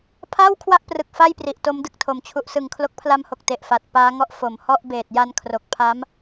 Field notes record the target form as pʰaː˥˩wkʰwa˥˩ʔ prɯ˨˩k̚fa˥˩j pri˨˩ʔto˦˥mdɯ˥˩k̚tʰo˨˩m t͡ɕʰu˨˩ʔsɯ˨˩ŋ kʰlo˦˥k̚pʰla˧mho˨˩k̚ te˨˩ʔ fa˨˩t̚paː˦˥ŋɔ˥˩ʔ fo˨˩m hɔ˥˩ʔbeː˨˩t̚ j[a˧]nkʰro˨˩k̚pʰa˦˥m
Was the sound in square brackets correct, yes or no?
yes